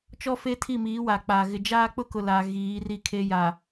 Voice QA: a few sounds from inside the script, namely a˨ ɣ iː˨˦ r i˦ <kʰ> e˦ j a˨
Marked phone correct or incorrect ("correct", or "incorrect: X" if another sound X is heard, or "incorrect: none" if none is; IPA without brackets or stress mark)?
correct